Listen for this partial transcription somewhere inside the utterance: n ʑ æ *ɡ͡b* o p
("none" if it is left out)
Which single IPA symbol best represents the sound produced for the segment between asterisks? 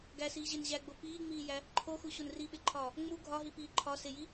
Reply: ɡ͡b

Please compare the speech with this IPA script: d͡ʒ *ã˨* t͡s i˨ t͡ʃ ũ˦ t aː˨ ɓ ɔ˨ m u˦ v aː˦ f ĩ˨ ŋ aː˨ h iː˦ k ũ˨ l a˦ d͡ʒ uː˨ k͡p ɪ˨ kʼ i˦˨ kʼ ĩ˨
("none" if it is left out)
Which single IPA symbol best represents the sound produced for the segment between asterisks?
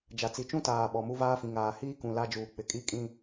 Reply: a˨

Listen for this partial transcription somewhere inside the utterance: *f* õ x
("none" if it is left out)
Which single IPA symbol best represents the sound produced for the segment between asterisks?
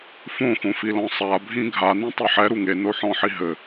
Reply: f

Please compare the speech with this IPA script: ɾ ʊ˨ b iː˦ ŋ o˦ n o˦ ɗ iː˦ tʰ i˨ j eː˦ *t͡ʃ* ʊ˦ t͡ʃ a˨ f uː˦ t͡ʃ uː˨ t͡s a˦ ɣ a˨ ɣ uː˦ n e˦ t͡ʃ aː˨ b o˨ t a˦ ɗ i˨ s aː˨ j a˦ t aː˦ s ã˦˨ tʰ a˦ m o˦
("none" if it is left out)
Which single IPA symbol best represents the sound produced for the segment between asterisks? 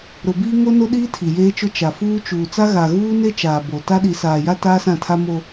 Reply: t͡ʃ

